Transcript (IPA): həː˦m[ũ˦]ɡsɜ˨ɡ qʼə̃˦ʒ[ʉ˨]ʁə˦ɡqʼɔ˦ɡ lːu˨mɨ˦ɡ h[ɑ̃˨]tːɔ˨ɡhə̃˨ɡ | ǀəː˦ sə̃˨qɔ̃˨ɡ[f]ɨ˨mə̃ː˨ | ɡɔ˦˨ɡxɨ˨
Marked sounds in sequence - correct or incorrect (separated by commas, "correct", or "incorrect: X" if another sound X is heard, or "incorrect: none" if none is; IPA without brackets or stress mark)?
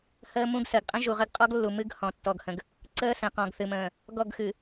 correct, incorrect: u˨, incorrect: ɔ̃˨, incorrect: θ